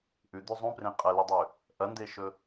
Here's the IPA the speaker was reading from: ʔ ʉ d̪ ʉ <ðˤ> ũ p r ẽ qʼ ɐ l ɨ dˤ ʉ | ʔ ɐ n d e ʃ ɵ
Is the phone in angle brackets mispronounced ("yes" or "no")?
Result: yes